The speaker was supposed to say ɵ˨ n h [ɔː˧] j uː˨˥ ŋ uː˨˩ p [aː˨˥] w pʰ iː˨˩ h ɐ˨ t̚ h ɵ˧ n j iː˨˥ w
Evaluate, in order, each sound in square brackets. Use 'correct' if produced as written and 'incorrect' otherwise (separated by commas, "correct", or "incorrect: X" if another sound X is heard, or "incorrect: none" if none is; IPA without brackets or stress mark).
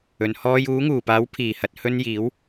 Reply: correct, correct